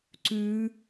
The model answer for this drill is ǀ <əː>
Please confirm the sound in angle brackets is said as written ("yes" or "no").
no